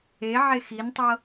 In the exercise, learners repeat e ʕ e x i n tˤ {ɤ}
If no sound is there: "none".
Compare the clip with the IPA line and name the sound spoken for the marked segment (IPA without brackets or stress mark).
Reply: ɤ